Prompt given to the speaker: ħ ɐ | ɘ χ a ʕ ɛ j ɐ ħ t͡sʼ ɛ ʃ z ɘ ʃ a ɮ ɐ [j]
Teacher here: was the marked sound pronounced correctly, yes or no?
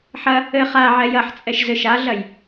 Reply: yes